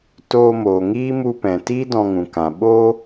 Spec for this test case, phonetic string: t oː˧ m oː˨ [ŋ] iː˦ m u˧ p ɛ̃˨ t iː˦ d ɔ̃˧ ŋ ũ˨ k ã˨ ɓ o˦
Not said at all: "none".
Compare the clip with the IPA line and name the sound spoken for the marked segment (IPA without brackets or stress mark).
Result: ŋ